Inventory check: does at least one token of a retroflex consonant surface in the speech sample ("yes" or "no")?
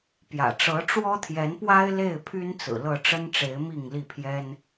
yes